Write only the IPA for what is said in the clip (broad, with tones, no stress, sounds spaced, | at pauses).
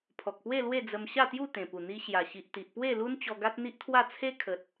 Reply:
pʰ ɔ˨ k̚ p w e˥˧ l w e˥˧ d͡z ə˧ m ɕ a˥˧ t̪ j u˥˧ t̪ ẽ˨˩ p u˨˩ n̪ i˧ ɕ j a˨˩ ɕ i˨ ʔ t̪ i˨ ʔ p w e˥˧ l u˦ n t͡ɕ ɔ˧ ɡ a˦ t̚ n̪ i˦ ʔ t̪ʰ w a˥˧ t͡sʰ e˦ kʰ ə˨ t̚